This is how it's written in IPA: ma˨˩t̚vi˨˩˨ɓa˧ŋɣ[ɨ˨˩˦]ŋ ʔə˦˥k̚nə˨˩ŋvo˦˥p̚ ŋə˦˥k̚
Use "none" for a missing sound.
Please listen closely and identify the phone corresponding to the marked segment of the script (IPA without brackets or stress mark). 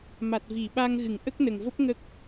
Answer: ɨ˨˩˦